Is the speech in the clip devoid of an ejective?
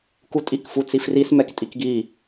no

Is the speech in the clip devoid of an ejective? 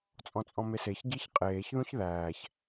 no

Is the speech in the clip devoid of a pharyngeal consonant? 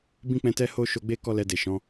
yes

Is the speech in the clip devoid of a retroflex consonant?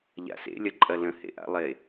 yes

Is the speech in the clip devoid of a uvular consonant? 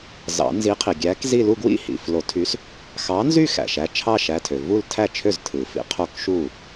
no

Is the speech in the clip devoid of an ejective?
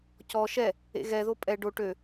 no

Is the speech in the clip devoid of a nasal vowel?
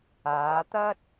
yes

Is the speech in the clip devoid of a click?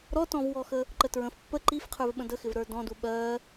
no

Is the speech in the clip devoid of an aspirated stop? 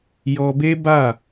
yes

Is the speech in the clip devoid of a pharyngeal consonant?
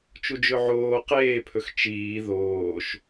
no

